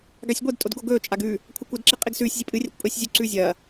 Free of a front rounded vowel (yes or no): yes